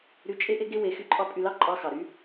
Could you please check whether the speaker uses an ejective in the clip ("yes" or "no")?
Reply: yes